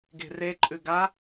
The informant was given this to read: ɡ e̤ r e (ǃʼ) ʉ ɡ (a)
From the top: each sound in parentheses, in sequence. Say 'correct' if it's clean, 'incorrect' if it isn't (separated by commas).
correct, correct